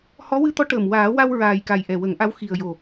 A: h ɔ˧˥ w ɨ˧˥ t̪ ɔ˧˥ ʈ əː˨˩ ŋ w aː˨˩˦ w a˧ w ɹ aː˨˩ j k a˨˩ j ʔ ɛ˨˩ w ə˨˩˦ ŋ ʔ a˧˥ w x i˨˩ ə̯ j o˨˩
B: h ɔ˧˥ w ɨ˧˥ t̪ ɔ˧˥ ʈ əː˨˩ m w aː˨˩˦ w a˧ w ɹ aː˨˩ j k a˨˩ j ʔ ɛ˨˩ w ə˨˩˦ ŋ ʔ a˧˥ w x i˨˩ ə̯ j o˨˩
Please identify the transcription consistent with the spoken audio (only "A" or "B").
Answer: B